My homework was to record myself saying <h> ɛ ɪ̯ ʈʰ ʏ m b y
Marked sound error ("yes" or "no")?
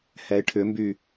no